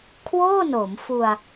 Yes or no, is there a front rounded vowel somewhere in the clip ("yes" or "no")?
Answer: no